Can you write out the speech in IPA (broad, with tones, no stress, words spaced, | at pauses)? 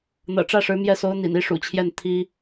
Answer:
n̪ɤ̰˨˩ʈ͡ʂä˥˩ʂɻ̩˧˥mjɛ˥˩ so˧˥ʊ̯n̪ḭ˨˩n i˧˥ʂṵ˨˩t͡ɕʰjɛ˥˩n t̪ʰi˥